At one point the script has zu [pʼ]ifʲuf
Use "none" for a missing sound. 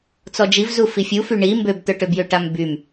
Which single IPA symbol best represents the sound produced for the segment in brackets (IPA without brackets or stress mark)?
f